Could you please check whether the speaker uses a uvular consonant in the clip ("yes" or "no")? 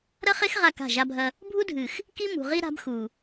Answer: yes